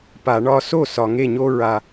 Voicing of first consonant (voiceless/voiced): voiceless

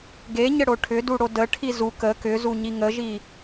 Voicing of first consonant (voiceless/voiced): voiced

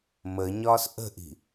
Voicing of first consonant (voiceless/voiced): voiced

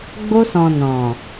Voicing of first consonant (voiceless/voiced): voiced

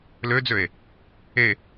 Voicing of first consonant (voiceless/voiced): voiced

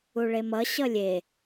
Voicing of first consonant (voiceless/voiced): voiced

